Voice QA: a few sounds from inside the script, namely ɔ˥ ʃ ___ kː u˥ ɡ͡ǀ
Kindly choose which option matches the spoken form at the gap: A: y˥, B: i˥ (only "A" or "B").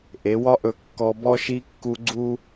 B